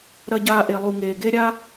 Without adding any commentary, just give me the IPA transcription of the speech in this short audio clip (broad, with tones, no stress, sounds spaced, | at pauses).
ɾ ɐ˧ ɟ aː˧ ʔ e˨ lˠ u˨ ŋ eː˨ ɡ e˦ ɾʲ a˦